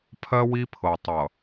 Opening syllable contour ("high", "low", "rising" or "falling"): high